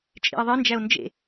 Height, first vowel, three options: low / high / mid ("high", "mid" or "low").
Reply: high